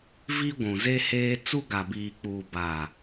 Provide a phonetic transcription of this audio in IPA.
vi˦ɡʷũ˨ze˦ heː˦ t͡su˦ɡa˨biː˨k͡puː˨ ba˨

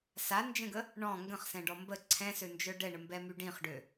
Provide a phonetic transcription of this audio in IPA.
sand͡ʒə̃ɡə | ɳɔ̃ ŋɡə̃χsɛ̃ɖɔ mbə ǀʰɛ̃sønd͡ʒœ ɖɛɳəmbɛmy ɖĩχɖø

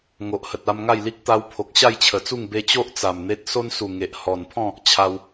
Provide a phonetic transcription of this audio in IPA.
ŋo˨ʔhə˨t̚a˧m ŋa˥˧jli˦k̚ t̪a˧wpʰo˨k̚ ɕa˥˧jt͡ɕʰə˨˩t͡su˥˧ŋ be˧t͡ɕo˦ʔ t͡sa˨˩mn̪e˦t̚ so˦nsu˨˩ ŋe˨ʔ hɔ˨˩npʰɔ̃˥˧ | t͡ɕʰa˧w

